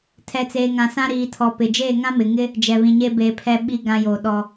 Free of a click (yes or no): yes